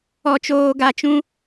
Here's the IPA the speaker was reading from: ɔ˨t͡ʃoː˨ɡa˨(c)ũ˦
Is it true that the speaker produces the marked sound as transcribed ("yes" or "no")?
no